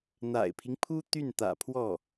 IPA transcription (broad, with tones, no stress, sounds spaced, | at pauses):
n̪ a̰˨˩ ɪ̯ pʰ i˦ ŋ pʰ u˥ t̪ y˥˩ n t̪ ä̰˨˩ pʰ w ɔ˥˩